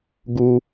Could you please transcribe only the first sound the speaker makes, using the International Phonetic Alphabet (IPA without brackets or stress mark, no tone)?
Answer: ɡ